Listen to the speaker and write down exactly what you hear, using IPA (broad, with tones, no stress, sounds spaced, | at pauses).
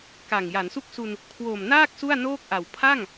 k a˨˩ ŋ j a˩˦ n s u˥˩ k̚ s u˧ n | kʰ w o˨˩ m n aː˥˩ k̚ s u˥˩ a̯ n oː˥˩ k̚ ʔ a˨˩ w pʰ a˥˩ ŋ